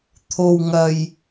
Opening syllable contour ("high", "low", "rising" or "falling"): low